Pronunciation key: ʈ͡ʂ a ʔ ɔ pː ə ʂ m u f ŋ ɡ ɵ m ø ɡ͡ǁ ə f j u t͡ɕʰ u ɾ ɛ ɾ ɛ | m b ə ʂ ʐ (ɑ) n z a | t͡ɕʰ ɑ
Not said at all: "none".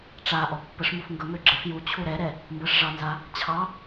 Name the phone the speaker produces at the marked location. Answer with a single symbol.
ɑ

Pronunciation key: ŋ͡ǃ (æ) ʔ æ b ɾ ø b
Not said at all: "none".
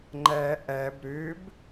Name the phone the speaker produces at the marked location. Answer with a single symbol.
æ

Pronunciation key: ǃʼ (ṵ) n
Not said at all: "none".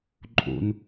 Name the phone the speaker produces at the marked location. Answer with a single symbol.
ṵ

